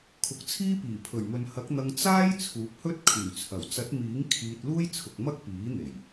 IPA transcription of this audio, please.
kʰ ʊ˨˥ k̚ t͡sʰ iː˥ p iː˨˩ pʰ ɵ˨˩ ɥ m ɵ˨ n h ɐ˨˥ k̚ n̪ ɐ˧ ŋ t͡s aː˥ j t͡sʰ uː˨˥ p̚ h ɵ˥ t̚ kʰ yː˨˩ t͡sʰ ɐ˨˩ w t͡s ɐ˨˥ t̚ m iː˨˥ ŋ kʰ iː˧ t̚ l uː˥ j t͡sʰ ʊ˨ k̚ m ɐ˥ k̚ p iː˨˥ n̪ e˨˩ j

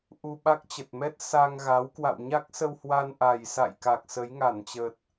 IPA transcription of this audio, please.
ʔ u˧ ɓ a˦˥ k̚ t͡ɕ ə˨˩ t̚ m ɛ˦˥ t̚ s a˧ ŋ ɣ a˨˦ w k w a̰˧˨ w ɲ a˦˥ k̚ s ə˧ w h w a˧ n ʔ a˨˩ j s a̰˧˨ j k a˨˩ k̚ s ə˨˦ j ŋ a˧˩ n t͡ɕ ə˨˩ t̚

